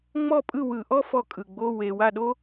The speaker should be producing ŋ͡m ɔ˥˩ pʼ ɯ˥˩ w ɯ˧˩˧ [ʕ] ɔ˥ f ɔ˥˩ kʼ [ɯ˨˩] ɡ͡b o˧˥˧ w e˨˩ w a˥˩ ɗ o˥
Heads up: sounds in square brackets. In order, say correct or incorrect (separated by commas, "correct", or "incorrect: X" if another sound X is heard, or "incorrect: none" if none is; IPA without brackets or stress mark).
incorrect: ʔ, correct